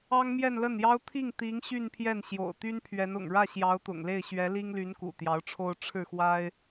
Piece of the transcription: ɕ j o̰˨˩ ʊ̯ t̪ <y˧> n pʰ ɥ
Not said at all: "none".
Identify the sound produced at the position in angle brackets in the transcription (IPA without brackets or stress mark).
y˥